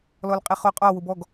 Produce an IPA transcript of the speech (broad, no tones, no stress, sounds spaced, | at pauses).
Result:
l ɔ l qʼ i χ o qʼ ɒ w ʊ b ɔ ɡ